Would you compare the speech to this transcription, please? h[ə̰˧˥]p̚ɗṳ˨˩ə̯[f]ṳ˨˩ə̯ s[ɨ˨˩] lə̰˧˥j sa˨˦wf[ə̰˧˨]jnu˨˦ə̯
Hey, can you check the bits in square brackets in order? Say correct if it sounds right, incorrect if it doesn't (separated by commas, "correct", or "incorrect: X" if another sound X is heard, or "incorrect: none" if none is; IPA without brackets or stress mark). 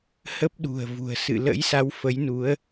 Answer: incorrect: ə˦˥, incorrect: v, incorrect: ɨ̰˧˨, incorrect: ə˨˦